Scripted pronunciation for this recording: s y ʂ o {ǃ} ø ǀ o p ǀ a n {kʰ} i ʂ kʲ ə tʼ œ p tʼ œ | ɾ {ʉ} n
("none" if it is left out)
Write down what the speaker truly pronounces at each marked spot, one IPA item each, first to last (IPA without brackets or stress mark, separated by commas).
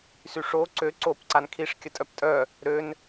ǀ, kʰ, ø